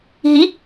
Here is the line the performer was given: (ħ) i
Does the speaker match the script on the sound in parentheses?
no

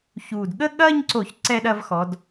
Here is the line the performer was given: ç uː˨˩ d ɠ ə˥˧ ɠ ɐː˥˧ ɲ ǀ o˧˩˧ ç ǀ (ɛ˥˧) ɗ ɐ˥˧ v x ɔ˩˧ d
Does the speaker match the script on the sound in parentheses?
yes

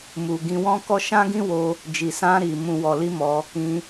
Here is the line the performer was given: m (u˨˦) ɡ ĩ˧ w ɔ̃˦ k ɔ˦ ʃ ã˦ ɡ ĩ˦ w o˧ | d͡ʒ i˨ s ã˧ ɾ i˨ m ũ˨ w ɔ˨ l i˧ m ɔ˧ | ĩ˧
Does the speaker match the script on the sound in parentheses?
no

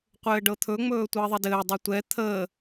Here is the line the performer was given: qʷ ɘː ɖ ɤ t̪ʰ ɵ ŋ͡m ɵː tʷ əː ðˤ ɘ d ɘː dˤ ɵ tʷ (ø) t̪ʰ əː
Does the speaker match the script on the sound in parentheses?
no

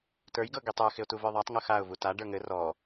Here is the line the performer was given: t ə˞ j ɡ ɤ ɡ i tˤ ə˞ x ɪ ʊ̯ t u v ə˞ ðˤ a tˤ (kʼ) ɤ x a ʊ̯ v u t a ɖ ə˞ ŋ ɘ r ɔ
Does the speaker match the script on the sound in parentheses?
no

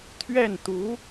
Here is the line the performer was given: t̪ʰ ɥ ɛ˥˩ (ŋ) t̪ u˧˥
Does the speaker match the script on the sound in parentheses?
no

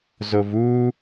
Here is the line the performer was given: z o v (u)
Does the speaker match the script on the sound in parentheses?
yes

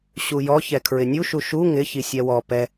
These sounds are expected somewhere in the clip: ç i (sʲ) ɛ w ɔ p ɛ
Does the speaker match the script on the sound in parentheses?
yes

